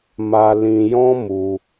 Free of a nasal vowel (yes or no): no